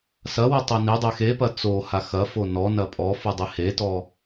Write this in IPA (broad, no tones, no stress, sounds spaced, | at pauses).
s ɐ w u tˤ e n i dˤ e x e p ɐ t͡s o h a x ɐ f o n ɔ n ɐ pʼ ɔ f u dˤ i h e t ɔ